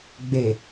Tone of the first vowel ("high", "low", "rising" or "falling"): low